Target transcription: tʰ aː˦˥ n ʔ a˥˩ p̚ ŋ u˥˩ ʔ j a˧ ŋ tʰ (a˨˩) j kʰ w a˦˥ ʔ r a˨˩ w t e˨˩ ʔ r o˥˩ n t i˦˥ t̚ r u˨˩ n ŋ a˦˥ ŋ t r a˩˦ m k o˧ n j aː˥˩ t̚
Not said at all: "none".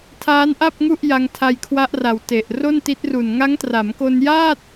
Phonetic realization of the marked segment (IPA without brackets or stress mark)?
a˧